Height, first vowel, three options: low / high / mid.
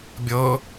mid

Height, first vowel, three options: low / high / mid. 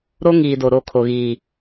mid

